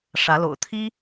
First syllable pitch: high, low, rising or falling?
rising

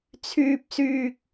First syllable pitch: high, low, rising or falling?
high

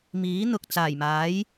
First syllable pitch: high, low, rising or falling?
rising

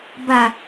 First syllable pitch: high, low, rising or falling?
low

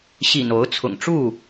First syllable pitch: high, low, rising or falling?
low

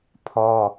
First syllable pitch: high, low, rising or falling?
high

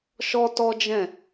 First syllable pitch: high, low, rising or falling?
high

